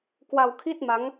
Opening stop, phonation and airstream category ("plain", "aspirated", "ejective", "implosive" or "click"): plain